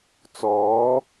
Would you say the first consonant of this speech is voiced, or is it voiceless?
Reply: voiceless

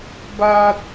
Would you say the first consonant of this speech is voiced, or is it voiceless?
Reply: voiced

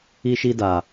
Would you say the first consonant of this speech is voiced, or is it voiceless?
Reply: voiceless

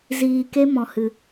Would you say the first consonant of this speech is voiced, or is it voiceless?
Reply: voiced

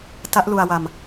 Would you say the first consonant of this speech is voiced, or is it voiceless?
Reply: voiceless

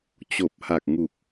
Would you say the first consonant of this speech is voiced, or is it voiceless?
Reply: voiceless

